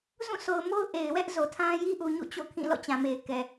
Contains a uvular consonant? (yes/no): no